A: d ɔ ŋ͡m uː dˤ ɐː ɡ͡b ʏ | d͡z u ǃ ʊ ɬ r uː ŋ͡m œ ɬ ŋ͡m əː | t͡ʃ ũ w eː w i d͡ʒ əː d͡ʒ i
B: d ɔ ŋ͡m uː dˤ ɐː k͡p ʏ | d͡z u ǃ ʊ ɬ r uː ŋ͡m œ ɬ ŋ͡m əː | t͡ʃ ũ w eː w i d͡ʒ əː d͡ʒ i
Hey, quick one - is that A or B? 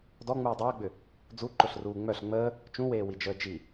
A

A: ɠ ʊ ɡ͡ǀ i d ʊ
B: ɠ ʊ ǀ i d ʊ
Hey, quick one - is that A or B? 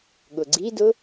A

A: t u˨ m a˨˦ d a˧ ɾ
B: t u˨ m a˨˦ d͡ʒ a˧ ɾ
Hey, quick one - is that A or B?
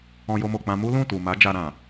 B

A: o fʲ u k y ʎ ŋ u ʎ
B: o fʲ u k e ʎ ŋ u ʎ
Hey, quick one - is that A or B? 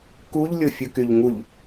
A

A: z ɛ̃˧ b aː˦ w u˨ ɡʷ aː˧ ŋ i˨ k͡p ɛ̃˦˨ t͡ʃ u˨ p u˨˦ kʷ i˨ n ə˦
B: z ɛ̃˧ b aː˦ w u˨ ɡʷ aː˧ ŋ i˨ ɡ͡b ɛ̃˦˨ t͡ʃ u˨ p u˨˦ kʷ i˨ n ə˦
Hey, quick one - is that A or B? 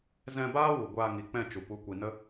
A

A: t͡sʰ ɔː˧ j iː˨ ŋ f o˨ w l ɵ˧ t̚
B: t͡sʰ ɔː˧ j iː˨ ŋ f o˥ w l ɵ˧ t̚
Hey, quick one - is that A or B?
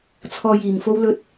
B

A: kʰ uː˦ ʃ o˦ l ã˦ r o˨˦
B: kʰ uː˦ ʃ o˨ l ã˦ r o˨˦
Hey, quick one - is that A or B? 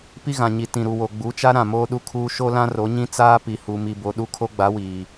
A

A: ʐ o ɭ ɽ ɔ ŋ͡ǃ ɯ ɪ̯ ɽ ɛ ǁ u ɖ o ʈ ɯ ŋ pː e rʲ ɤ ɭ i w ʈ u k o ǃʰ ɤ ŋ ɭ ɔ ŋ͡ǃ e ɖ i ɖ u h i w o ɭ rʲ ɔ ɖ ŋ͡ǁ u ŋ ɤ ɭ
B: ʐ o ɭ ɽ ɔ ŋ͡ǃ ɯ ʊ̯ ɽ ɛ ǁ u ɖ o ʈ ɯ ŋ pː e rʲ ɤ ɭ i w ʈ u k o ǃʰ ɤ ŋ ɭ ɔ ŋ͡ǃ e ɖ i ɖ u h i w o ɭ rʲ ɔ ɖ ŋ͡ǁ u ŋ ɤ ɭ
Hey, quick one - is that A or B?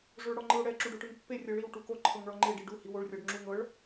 B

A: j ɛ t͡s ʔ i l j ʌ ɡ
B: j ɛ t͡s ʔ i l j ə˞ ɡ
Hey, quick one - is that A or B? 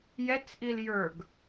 B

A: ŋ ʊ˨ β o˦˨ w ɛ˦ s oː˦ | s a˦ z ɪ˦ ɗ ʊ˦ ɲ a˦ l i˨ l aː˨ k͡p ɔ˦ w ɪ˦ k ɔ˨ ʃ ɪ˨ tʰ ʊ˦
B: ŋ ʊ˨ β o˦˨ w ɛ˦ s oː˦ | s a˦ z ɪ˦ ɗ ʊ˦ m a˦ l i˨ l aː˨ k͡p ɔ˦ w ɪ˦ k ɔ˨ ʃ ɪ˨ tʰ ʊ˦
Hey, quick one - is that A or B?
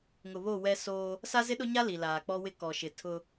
A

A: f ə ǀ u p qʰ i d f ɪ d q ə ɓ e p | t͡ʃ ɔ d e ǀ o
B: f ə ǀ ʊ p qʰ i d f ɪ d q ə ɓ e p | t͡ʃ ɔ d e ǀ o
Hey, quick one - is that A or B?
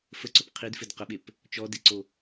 B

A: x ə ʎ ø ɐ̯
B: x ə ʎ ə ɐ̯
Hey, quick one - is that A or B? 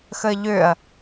A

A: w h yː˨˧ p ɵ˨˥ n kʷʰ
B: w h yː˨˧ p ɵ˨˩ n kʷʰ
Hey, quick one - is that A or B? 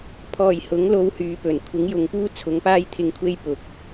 B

